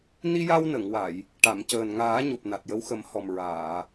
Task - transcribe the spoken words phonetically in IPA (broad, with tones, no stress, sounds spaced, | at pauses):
n i˧ j a˧ w n ə˨˩˨ ŋ w a˨˩˨ j | ʈ a˨˩˨ m c əː˨˩ n ŋ aː˨˩˦ ɲ o˨˩ p̚ n a˨˩ t̚ j ə˧ w x ə˨˩˦ m h ɔ˨˩ m ɹ aː˨˩˨